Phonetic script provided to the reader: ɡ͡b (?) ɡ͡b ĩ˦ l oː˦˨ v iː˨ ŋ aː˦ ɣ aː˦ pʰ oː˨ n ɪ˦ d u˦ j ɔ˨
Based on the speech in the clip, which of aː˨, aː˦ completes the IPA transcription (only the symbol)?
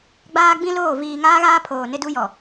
aː˦